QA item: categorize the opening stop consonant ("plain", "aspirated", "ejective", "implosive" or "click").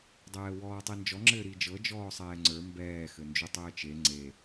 plain